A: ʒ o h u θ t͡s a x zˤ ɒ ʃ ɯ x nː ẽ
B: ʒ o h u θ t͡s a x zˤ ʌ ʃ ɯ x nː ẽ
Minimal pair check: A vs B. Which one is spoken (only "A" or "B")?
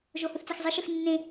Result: B